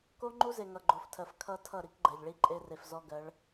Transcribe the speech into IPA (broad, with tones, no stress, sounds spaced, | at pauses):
k o˦ ŋ͡ǃ u˦ z e˨ ŋ ʌ˨ ɡ͡ǃ o˨ f tʰ ɜ˨ f kʰ ʌ˦ tʰ ʌ˦˨ ɾ i˦ k ɡ͡ǃ ɜ˨ ʎ ɭ i˦ ǃʼ e˦ r e˨ f z ɔ˦ ɡ ɜ˨˦ ɭ